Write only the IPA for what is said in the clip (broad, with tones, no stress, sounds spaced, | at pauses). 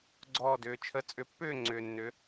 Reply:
ɡ͡ǀ ɔː˥˧ d ʏː˩˧ t͡ʃʰ ə˦˥ t͡sʼ ʏ˩˥ pː ʏː˥˧ ŋ͡ǀ ʏː˩ nː ʏ˩˧